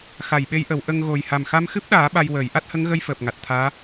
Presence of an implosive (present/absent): present